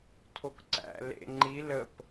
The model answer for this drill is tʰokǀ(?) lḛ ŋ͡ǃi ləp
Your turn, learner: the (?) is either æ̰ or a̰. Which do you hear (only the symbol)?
æ̰